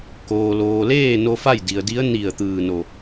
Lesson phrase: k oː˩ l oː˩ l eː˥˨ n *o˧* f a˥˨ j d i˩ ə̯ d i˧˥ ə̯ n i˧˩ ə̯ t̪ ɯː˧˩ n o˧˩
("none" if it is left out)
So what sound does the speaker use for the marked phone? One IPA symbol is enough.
o˧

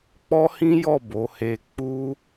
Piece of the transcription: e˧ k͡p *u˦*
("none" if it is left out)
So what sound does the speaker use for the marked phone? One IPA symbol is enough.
u˦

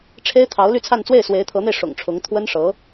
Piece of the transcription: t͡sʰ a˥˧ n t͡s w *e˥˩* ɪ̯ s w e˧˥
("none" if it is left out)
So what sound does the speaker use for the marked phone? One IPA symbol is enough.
e˥˩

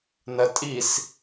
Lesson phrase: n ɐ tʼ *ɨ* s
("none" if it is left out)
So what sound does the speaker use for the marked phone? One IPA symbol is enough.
i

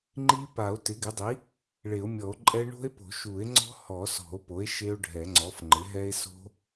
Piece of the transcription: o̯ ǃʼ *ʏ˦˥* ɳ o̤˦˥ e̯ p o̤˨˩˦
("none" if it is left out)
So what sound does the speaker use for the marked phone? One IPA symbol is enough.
ɛ˦˥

